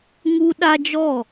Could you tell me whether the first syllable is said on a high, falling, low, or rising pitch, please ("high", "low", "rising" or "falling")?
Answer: high